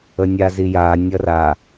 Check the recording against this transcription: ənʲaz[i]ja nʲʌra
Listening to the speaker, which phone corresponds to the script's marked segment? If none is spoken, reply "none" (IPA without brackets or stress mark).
i